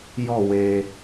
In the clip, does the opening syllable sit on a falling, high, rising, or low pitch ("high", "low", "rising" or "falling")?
falling